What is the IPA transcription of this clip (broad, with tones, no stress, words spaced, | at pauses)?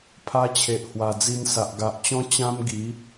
pʰa˧t͡ɕʰe˨ʔ hwa˨˩d͡zi˧nsa˨ʔ ɡa˨ʔt͡ɕɔ̃˦ t͡ɕã˦mɡi˨˦